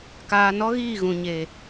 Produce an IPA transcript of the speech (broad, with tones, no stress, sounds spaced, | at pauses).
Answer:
k aː˨ n ɔ˦ ɣ iː˦˨ ɣ ũ˨ ɲ e˨